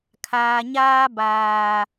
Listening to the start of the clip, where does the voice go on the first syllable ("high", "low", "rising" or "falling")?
low